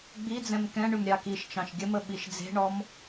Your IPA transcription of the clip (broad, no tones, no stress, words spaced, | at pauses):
ɡ͡bid͡zɛ̃m kɛ̃ɳʏm ɾʲɑkiʃt͡ʃɑ̃ʃ ɡʲəmə ɓiʃd͡ze̤ɳɔm